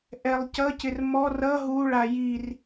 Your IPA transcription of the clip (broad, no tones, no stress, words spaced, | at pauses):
ʔɛlˠcʌcɪr mɔr ʌ ɦuɭa jir